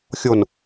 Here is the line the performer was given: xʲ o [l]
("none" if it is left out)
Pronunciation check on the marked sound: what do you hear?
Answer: n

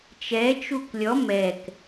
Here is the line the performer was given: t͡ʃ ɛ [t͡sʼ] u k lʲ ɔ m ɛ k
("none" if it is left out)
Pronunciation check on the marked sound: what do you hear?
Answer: t͡ʃ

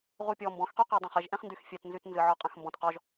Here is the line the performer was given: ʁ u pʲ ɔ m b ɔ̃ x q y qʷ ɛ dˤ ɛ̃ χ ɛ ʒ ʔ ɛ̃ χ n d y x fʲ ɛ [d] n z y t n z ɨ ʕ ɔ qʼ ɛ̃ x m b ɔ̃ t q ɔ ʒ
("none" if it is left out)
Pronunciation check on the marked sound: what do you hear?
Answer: t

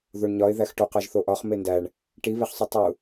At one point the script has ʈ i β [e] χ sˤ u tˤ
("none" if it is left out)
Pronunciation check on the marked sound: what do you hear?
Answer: e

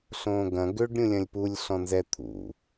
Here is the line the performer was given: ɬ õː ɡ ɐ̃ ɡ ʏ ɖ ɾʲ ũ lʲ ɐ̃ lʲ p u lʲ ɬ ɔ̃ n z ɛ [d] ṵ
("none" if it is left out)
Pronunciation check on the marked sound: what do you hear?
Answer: t̪ʰ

